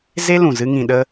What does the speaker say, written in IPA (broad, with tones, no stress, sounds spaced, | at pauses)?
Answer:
z e˦ l ũ˨ z ɨ˦ ŋ ĩ˧ ɗ ə˧